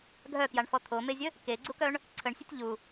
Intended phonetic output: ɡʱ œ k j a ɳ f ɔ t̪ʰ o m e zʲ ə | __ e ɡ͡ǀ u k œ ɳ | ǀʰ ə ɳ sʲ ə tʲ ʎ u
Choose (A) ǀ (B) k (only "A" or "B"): B